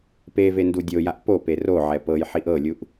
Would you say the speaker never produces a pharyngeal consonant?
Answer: no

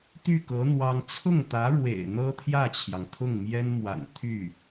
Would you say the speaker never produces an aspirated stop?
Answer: no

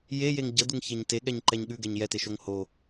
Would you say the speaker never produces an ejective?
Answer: yes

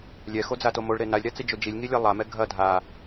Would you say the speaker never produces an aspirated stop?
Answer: yes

